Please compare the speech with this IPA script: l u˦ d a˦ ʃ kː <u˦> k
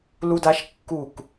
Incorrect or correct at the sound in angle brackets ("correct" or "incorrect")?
incorrect